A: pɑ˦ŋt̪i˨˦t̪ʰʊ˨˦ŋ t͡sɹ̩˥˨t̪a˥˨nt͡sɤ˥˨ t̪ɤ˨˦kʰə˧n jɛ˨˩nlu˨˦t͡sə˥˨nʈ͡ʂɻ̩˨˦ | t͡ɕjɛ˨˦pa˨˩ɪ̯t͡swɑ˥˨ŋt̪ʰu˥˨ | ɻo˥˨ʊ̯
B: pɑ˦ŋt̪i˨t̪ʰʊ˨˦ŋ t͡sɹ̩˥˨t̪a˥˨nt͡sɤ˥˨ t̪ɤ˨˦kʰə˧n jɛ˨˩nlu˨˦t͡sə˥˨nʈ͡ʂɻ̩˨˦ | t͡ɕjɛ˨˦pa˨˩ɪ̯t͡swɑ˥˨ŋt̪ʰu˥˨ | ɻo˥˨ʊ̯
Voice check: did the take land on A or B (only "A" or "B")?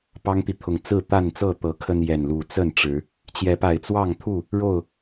B